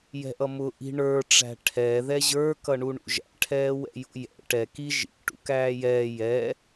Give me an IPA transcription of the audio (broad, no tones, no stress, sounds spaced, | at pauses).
j ɛ̤ ʔ ʌ m ʊ ʔ i̤ ɳ ə˞ ʈ͡ʂ æ̤ ʈʰ ɛː ð ɛ ʑ ə˞ k ʌ ɳ u ɳ ṵ ʒ æ̰ ʈʰ ɛː w ɛ̰ j ṵ j ɛ̰ ʈ ɛ k i ʒ ḭ ʈ ṵ k æː j ɛː j ɛ